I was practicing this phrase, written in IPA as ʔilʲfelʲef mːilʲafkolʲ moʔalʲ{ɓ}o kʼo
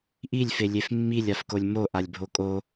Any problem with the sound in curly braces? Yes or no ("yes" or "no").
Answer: yes